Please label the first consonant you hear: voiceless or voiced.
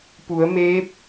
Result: voiceless